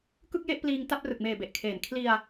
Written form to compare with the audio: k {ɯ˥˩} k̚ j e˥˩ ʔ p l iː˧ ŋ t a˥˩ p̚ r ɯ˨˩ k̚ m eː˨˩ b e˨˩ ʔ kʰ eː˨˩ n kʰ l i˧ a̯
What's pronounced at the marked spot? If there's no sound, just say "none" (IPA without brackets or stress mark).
ɯ˥˩